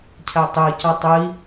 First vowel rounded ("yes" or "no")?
no